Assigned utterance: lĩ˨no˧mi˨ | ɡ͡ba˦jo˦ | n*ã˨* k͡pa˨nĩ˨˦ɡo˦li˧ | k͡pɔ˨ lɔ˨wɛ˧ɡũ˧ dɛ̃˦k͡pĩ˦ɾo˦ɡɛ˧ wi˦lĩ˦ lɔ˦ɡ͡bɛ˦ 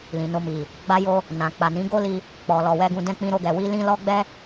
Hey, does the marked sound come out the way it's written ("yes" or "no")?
yes